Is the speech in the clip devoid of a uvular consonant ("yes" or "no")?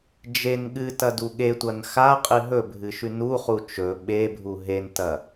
no